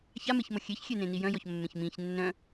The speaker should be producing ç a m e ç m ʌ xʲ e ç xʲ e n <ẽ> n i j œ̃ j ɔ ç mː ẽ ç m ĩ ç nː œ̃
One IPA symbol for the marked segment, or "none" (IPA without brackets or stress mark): ẽ